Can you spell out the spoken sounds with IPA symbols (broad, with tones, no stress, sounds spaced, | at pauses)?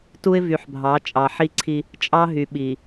t u˦ ɪ̯ v y˨ ħ bʱ ɑ˨˦ t͡ʃʼ ɑ˨ ħ i˦ ǀʰ i˦ | t͡ʃʼ ɑ˦ ɦ y˨ ɓ i˨